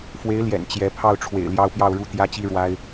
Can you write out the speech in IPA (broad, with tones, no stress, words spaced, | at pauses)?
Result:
fwe˧˥ɪ̯ljɛ̰˨˩n t͡ɕjɛ˧˥ pʰɑ˥˩ʊ̯ʈ͡ʂʰwḛ˨˩ɪ̯ ljɑ˥ʊ̯pjɑ˥˧ʊ̯ ɻu˥˩t̪jä˥t͡ɕi˥ ɻwa˥ɪ̯